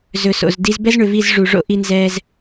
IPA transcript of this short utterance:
z ɵ˨ s o̰˨ z d i˦ z b ɛ˦ z ɳ ʏ˨ v i˦˨ z ʐ u˨ ʐ o̰˦ ʔ i˦ n z ɛː˦ z

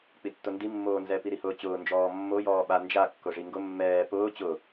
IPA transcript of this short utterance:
k͡p i tː ʊ n d i mː oː n z ɛ p i ɾ i h ʊː t͡ɕ ʊː n d͡ʒ ɔː mː o j ɔː ɓ a n d͡ʒ a kː ʊ ʐ i ŋ ɡ ʊ mː ɛː p ʊː t͡ɕ ʊ

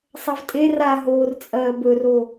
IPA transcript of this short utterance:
sˤ ɐ v tʼ e r a ɦ oː r t͡sʼ ɐː b ɵ r o

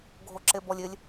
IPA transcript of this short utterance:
ɡʱ o ǁ e b ɔ lʲ ɪ lʲ

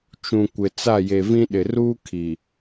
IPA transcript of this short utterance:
t͡ʃ ũ˨ kʷ ɪ˨ t͡s a˦˨ j e˨ v ĩ˦ ɗ ɪ˨ r uː˦ kʰ i˨

